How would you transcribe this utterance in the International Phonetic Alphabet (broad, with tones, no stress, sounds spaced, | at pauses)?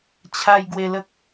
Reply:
t͡ɕʰ a˧ j ɡ w e˧ l ə˦ k̚